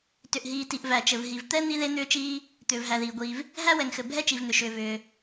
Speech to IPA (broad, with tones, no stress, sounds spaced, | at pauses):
t ʏ˩ ʔ ɦ iː˩ t i˩ ʔ v æ˩ t͡ʃ ɘ˩ v ɦ i˩ v t̪ ɛ˥ n̪ i˥ ð e˥ n̪ ʏː˥ t͡ʃ iː˥ | t̪ ʏː˩ v ɦ æ˩ ð iː˩ ɡʷ iː˩ v | ɦ æ˥ w ɛ˩ ŋ x ɘ˩ bʱ ɛ˥ t͡ʃ i˩ v n̪ ʏ˩ ʃ ʏː˩ v ʏː˩